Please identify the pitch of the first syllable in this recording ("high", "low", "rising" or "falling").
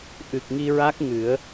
low